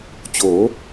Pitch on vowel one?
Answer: rising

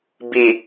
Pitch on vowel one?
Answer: low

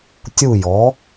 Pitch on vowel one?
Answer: falling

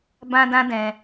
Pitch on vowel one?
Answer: high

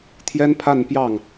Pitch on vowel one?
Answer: high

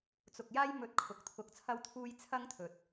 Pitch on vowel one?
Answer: low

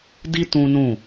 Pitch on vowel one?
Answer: high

